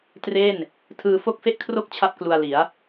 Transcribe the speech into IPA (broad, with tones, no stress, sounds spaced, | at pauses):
t r e˥˩ n | tʰ ɯː˧ f o˥˩ k̚ f e˥˩ ʔ kʰ r o˥˩ k̚ t͡ɕʰ a˥˩ p̚ k l u˧ a̯ l i˩˦ a̯